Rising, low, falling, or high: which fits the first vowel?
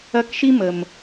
high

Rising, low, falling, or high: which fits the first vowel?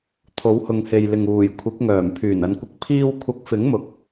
rising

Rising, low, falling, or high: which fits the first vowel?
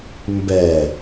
low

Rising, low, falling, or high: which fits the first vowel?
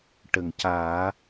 low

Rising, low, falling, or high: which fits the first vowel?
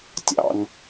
low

